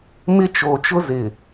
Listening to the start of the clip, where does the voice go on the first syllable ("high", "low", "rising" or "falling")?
high